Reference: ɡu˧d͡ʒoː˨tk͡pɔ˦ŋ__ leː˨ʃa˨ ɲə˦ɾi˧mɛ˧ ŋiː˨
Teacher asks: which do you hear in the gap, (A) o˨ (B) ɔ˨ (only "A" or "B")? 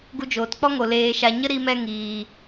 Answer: A